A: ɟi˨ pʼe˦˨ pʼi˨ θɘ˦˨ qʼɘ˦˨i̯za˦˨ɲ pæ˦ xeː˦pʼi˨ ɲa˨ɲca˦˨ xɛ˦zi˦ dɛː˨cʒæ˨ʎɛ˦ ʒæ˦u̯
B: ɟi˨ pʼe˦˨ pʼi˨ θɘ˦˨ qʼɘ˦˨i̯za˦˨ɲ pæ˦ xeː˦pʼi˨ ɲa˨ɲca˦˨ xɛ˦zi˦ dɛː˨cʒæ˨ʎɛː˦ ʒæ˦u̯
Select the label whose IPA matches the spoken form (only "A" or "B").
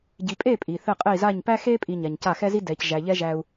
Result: A